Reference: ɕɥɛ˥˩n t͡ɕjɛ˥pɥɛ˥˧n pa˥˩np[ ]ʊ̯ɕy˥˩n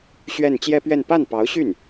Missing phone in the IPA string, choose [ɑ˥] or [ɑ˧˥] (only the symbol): ɑ˧˥